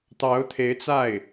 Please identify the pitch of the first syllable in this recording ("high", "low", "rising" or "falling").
rising